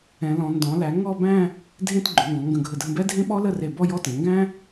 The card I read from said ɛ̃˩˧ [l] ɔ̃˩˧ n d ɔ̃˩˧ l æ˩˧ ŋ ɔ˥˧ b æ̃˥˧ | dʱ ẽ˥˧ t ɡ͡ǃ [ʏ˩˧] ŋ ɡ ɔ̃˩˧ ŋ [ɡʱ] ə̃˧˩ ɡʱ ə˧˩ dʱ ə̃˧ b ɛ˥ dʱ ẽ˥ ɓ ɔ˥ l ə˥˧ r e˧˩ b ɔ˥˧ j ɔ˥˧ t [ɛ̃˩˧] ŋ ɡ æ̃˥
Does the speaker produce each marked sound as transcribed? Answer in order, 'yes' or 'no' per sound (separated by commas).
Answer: yes, yes, no, yes